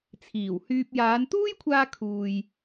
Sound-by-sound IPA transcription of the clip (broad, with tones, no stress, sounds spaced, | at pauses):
t͡sʰ iː˨˩ w h yː˧ p̚ j aː˨˧ n t̪ uː˥ j kʷʰ aː˧ kʰ uː˨ j